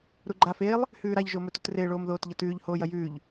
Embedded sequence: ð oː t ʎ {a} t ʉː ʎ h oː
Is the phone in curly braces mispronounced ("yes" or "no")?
yes